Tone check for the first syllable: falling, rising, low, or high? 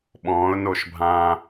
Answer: rising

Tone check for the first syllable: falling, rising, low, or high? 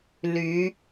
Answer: rising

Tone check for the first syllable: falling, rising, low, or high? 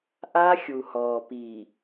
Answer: high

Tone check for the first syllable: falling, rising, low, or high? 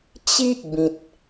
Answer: high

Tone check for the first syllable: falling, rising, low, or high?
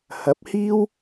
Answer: rising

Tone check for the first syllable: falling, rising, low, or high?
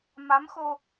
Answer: rising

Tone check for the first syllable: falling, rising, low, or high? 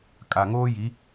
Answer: low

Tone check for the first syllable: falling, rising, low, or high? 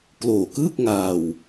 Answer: low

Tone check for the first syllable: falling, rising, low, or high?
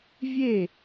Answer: falling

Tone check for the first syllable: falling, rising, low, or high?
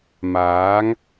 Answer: rising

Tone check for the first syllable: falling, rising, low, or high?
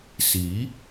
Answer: rising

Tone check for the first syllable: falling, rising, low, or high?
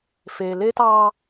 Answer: low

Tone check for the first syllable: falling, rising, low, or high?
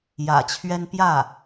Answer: low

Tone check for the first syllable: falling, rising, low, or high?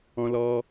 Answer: high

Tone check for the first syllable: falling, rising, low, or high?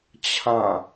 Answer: falling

